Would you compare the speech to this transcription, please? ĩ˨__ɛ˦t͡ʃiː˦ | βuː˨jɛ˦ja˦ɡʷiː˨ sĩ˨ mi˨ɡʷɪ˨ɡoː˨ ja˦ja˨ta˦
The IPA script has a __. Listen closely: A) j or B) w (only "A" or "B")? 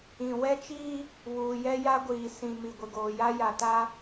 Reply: B